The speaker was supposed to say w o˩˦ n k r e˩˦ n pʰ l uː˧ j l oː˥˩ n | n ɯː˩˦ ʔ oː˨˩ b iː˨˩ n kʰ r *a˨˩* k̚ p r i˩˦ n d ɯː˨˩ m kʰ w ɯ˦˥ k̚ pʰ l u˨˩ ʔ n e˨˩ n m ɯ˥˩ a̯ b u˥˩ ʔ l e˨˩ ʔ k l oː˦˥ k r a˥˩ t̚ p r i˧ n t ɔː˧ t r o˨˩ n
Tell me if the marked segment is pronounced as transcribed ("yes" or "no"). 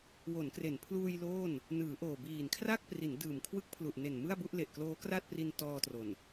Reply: no